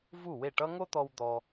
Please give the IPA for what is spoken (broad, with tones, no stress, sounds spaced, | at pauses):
v u˥˩ w e˥˩ ʈ ʌ˥ ŋ o˥ t̪ ɔ˧ w d̪ ɔ˧